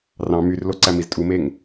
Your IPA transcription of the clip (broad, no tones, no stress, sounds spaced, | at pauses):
r ɑ̃ m y r l o ǀ æ m i z tʼ u m e ŋ